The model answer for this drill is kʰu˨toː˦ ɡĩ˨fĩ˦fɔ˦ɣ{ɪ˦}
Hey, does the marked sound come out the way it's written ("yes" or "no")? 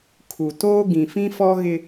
yes